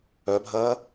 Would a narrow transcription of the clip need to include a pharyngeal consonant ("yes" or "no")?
no